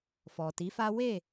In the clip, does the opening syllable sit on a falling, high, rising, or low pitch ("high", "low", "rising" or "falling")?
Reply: low